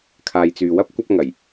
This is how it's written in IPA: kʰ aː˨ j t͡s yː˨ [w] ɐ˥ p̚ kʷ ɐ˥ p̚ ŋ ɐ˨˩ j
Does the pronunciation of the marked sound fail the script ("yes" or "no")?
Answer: no